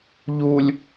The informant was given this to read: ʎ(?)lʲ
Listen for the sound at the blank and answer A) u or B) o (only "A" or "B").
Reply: A